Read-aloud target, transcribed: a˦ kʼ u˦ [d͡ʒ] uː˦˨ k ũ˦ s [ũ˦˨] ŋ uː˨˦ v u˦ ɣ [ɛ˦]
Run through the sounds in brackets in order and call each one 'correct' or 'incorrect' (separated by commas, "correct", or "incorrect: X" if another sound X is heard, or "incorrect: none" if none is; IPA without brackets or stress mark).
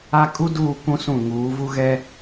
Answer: incorrect: d, correct, correct